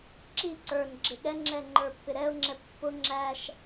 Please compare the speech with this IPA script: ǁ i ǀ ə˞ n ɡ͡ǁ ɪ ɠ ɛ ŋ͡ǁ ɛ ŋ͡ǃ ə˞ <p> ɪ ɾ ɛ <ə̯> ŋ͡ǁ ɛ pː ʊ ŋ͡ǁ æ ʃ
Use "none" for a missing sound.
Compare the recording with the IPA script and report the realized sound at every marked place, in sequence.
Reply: pː, ʊ̯

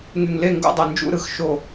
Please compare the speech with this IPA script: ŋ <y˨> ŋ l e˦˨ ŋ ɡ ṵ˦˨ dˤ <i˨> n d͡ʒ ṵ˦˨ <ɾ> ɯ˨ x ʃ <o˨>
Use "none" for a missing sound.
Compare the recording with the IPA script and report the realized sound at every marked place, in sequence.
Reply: y˨, e˨, ɾ, o˦˨

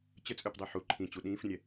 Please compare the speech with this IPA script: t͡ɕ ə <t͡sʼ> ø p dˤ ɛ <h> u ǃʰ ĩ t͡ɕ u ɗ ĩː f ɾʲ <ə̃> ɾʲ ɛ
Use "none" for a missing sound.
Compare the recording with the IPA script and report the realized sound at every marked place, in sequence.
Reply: t͡sʼ, ħ, ə̃

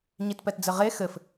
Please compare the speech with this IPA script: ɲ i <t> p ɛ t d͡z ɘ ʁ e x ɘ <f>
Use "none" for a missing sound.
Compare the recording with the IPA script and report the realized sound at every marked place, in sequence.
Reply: t, f

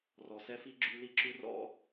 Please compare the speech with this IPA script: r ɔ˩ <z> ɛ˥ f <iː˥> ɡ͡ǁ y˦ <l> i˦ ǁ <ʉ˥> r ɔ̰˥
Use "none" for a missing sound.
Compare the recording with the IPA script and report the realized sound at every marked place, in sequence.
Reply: s, i˥, l, ʉ˥

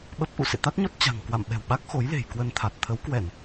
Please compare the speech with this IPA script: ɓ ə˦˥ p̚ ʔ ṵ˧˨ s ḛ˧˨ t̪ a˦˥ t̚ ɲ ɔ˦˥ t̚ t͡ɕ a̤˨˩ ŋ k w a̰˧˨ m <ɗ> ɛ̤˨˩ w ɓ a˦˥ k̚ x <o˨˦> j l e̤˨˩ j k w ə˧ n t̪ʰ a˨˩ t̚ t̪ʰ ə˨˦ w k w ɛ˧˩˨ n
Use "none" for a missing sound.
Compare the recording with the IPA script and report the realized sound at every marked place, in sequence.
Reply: ɓ, o˨˦

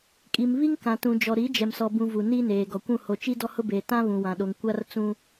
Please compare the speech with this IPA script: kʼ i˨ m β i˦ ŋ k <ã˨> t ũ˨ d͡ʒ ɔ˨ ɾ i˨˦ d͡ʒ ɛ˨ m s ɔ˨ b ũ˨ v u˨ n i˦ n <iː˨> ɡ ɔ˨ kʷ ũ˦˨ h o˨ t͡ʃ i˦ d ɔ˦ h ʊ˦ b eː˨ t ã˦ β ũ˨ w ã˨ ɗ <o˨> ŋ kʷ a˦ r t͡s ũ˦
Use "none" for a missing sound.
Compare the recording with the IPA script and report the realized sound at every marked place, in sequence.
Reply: ã˨, eː˨, o˨

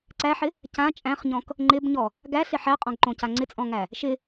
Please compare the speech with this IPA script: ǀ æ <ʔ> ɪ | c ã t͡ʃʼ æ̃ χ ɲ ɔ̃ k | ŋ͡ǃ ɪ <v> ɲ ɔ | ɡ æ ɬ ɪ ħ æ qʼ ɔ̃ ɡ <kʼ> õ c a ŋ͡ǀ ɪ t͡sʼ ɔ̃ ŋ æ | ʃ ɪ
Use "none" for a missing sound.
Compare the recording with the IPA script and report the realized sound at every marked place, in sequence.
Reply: ħ, b, ǃ

